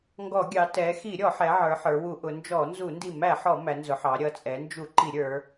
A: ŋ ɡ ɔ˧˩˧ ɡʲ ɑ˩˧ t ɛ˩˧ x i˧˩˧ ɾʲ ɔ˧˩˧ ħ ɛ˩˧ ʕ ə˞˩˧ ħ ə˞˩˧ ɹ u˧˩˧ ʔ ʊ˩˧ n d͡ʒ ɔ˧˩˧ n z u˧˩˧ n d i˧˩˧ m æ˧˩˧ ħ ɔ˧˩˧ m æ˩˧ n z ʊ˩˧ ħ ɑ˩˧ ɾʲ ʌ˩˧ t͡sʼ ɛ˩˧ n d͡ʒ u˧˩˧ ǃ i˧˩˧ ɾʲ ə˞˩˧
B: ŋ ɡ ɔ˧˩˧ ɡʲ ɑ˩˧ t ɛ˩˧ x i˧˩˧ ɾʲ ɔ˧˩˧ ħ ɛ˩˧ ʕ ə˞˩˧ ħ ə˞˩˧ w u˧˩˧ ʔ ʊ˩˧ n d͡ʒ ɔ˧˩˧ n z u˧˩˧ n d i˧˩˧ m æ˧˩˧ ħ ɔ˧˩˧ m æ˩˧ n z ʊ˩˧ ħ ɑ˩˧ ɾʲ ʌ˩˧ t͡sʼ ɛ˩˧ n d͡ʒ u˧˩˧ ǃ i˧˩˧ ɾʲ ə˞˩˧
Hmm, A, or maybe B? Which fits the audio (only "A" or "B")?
B